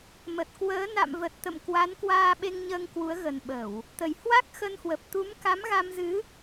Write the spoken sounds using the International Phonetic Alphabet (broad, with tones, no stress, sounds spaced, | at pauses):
m ə˨˩ t̚ k w əː˨˦ n a̰˧˨ m v ə˨˩ t̚ t̪ ə̰˧˨ m k w a˨˦ n k w aː˧ ɓ e˧ ŋ ɲ əː˧ ŋ k w u˨˦ ə̯ ɣ ə˨˩ n ɓ ə˧˩˨ w | t̪ ə˧˩ j h w a˦˥ k̚ x ə˧ n h w ə˨˩ p̚ t̪ u˨˦ m k a˨˦ m ɣ a˧ m z ɨ˨˦